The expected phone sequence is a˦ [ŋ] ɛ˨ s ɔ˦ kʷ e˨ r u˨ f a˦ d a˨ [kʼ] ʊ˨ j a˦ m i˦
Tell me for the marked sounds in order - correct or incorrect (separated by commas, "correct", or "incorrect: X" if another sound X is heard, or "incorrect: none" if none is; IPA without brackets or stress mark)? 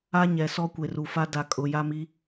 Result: incorrect: ɲ, correct